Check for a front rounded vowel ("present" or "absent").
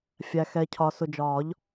absent